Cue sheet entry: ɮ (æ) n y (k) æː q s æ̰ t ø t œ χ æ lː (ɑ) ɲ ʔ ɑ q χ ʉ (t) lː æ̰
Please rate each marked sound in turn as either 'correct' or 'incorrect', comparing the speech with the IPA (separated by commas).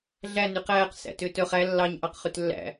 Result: correct, incorrect, correct, correct